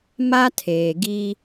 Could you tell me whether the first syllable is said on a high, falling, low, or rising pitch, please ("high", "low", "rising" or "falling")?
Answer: high